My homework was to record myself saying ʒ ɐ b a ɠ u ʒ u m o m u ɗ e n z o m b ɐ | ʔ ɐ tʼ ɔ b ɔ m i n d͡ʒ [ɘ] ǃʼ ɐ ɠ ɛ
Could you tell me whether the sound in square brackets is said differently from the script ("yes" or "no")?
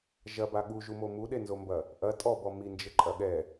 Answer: no